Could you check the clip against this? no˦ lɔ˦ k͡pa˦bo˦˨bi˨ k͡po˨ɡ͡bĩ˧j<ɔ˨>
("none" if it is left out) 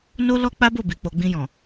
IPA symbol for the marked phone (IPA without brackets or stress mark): ɔ̃˨